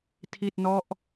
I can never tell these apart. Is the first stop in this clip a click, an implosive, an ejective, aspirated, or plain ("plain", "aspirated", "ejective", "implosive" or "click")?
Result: aspirated